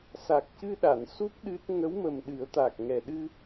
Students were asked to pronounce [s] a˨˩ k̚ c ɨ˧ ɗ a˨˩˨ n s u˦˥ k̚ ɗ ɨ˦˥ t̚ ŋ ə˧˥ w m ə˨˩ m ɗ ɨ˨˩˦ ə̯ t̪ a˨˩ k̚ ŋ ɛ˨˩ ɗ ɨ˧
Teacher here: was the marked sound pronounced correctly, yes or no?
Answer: yes